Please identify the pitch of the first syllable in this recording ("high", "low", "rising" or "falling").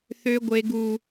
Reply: high